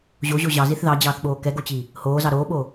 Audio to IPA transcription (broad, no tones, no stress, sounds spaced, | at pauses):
ʑ o ʑ o ʑ ɑ z i θ ð ɑ d͡ʑ ɑː θ ɓ oː k ɛ ɡ o t͡ɕ i | h oː z ɑ ɾ oː ɓ o